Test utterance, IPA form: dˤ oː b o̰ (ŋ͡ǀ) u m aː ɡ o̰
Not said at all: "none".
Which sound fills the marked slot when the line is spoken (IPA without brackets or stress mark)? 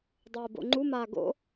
ŋ͡ǃ